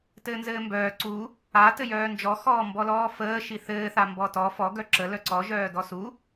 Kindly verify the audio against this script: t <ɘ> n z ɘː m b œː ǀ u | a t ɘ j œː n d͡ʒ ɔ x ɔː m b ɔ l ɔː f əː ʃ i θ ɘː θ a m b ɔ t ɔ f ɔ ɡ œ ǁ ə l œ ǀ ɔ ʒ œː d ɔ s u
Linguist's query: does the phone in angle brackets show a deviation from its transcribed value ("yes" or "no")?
yes